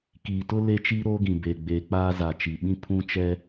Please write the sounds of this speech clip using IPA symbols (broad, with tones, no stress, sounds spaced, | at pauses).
k iː˨ t ʊ˦ l e˦ t͡ʃ i˦ ɾ oː˦ ɡ ĩ˨ b eː˨ ɡ͡b eː˨ k͡p aː˦ z a˨ t͡ʃ i˨ ɓ ĩ˦ pʰ ũ˦ t͡ʃ ɛ˦